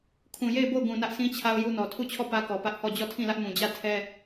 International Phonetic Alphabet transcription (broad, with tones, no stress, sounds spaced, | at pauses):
kʰ ũ˨ j e˦˨ ɪ̯ b o˦˨ ʊ̯ ɡ ũ˨ n ä˦ ʔ sʰ ĩ˦ t͡ɕʰ a˦ ʊ̯ j u˦ n ɔ˨ tʰ u˦˨ t͡ɕʰ ɔ˦˨ p ä˦ k ɔ˨ p ä˦ ʔ h ɔ˦˨ d͡ʑ ɔ˦˨ tʰ ĩ˦˨ l ä˦ ʔ m ũ˨ d͡ʑ ä˦˨ tʰ ɛ˦